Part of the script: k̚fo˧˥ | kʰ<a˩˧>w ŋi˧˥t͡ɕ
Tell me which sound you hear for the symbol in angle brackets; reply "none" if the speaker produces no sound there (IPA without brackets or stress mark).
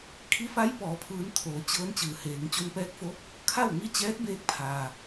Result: a˥˨